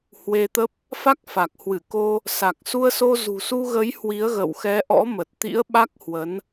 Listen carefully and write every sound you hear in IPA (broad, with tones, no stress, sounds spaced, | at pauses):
h w e˧ t̪ ə˦˥ p̚ | f a˦˥ k̚ f a˨˩ k̚ h w ɨ˧˩ k o˧ | s a˨˩ k̚ s u˧ ə̯ s o˧ z ṳ˨˩ s u˧ ɣ ə˨˦ j h w i˨˦ ə̯ ɣ ə̰˧˨ w x ɛ˨˦ ʔ ɔ̰˧˥ m ə˨˩ t̚ t̪ ḭ˧˥ ə̯ ɓ a˦˥ k̚ h w ə˨˦ n